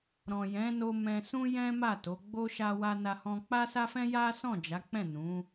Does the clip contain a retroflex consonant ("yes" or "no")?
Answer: no